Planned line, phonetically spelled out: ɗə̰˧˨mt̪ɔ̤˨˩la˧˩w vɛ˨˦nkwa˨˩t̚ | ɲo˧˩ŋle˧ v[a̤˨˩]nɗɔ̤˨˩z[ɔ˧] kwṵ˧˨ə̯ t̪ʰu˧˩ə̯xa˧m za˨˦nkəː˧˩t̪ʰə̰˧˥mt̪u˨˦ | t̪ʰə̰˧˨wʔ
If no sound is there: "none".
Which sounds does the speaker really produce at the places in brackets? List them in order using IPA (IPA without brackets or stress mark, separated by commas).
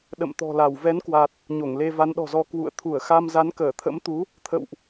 a˨˦, ɔ˧